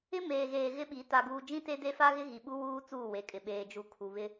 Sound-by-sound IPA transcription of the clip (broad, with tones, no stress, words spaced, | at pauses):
ɪ˦meː˨ɣeː˨ ɣɪ˦ɓi˨˦ ta˨ɡuː˨ d͡ʒĩ˦te˦de˦ fa˦ɣɪ˦ ɣi˨ɓu˦ wuː˦ t͡suː˦˨we˨kʼɪ˨ ɓeː˨d͡ʒu˨ kʰu˨βɪ˦